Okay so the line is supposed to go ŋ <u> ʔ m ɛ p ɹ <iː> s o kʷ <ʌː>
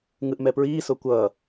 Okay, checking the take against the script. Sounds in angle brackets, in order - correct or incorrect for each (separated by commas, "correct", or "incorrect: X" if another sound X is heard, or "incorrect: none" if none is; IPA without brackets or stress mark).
incorrect: ɯ, correct, correct